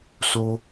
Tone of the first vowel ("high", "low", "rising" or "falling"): high